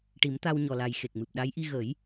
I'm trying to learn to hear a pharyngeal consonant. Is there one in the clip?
no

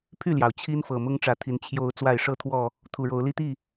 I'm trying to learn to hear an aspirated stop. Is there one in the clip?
yes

